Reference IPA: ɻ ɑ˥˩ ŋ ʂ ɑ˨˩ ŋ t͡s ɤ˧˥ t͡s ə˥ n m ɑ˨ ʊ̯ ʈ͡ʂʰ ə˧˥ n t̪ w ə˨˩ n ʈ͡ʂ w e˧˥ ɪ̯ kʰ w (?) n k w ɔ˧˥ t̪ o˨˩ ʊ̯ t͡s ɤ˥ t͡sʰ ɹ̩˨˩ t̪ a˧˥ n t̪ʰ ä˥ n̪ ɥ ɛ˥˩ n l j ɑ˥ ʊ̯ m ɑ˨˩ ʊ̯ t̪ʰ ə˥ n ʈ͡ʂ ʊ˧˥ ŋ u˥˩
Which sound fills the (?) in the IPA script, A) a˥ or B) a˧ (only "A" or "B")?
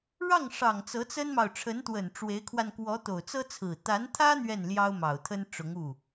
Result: B